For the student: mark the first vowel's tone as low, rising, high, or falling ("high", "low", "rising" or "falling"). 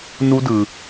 high